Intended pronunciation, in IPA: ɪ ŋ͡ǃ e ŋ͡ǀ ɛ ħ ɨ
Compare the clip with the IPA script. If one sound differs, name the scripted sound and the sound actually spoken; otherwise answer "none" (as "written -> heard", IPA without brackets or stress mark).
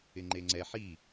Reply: ɨ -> i